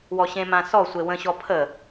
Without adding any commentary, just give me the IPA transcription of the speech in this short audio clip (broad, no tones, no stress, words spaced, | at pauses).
wɔɕẽmã sɔ sʷewə̃ɕɔ pʰə